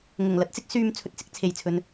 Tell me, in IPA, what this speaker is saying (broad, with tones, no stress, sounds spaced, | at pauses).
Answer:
ŋ ʊ˨˩ ŋ l ɐ˨˥ t̚ t͡s ɪ˨˥ k̚ s yː˧ m t͡sʰ ɵ˧ t̚ t͡s ɪ˨˥ k̚ t͡sʰ e˨ j t͡sʰ ɵ˨˧ n